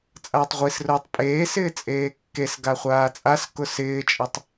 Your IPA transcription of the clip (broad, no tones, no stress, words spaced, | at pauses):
t͡sʼaːtˤʁʷisrʊːtˤ pʼeː sɪːt͡sʼeːkːesɡa χʷaːt͡sʼaskʊ sɪːt͡ʃʼɪtˤ